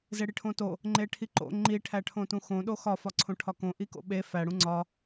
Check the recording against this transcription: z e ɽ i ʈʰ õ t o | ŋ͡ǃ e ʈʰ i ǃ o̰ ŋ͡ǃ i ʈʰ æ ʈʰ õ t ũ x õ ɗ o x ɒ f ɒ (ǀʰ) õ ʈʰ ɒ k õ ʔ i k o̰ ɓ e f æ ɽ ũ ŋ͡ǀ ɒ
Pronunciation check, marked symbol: correct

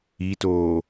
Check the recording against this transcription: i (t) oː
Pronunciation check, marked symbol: correct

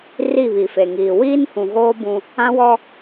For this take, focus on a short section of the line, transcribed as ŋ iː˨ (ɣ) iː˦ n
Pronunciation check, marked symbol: incorrect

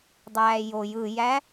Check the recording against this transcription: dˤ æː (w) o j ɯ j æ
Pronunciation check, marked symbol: incorrect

